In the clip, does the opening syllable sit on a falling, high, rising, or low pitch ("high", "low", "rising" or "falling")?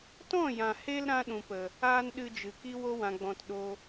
falling